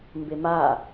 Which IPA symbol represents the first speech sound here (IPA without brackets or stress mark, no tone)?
m